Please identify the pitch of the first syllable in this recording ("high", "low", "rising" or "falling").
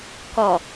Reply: low